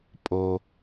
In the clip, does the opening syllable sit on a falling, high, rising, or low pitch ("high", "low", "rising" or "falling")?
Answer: low